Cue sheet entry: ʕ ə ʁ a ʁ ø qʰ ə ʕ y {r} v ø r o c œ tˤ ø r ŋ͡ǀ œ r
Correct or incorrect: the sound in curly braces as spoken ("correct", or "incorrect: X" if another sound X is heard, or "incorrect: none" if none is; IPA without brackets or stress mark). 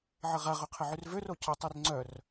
correct